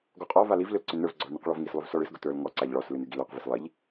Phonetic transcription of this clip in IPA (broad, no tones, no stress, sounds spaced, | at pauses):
ɡ ɔ qʼ ɔ v a l i v l ʏ l ǀ ʏ n ə˞ v ɡ͡ǀ ɔ ɭ n i q ɭ ɔ v ŋ i s lˠ ʏ v s ɔ ɭ ɨ s ɡ ʊ t ə˞ l ŋ ɔ ǀ a ʎ ɭ ɔ s l ɨ n ɨ ɡ i l ə˞ q v i s lˠ i ʎ